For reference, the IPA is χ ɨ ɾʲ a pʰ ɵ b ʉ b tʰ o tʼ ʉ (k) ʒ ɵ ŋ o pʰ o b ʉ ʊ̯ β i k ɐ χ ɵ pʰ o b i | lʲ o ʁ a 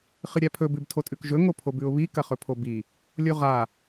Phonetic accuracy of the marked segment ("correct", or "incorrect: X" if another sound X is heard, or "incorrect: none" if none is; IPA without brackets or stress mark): correct